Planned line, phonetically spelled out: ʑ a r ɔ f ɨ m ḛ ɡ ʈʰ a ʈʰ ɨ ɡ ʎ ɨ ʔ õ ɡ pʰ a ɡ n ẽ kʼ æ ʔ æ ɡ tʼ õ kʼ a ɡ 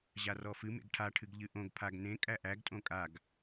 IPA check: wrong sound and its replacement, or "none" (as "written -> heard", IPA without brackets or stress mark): none